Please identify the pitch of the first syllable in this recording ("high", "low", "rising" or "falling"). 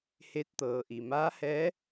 rising